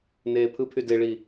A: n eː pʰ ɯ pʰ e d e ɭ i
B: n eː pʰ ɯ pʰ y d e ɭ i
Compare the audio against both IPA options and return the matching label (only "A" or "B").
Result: B